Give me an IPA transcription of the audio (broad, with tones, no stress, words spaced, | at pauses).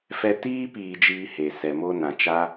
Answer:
fɛ˧tiː˦ piː˧d͡ʒiː˧he˨ sɛ˨ mo˧nã˨t͡ʃa˧